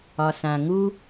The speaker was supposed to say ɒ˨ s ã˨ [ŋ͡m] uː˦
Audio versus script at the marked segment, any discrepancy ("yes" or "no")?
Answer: yes